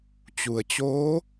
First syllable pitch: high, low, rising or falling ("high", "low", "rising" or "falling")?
low